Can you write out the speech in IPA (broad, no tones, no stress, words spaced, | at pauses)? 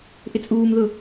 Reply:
ʔɪt͡sʼuːmðʊ